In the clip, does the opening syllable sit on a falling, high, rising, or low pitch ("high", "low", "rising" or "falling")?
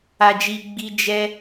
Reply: low